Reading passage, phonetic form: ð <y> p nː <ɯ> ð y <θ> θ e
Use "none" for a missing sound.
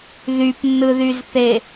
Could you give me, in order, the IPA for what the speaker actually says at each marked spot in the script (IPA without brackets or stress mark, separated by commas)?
y, ɯ, z